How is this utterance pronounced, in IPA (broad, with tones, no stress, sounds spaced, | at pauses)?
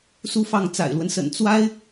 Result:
s u˥ f ɑ˥˩ ŋ t͡s a̰˨˩ ɪ̯ l w ə˦ n s ə̰˨˩ n t͡s w a˥ ɪ̯